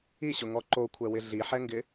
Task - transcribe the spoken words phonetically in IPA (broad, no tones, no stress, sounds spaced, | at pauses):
i ɕ ʊ ŋ ɔ ǃ o kʷʰ ɛ w ɪ ɮ i ħ ɛ ŋ ɡ ɪ